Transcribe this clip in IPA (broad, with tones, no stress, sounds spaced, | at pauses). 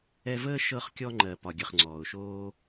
ɛ˧ v əː˦ ʃ ɤ˧ χ kʲ ɔ˧ ŋ͡ǃ ɜ˨ p ɒ˨ ɡʲ ə˨ χ ŋ͡ǀ ɔː˨ ʊ̯ ʃ oː˦